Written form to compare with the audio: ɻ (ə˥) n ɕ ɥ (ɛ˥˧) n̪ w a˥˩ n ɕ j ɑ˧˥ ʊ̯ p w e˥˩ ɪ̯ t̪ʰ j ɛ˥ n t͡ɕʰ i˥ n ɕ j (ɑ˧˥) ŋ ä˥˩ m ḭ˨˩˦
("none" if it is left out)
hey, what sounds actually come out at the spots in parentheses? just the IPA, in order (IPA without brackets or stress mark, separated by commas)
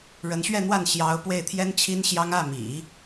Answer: ə˧˥, ɛ˥˧, ɑ˥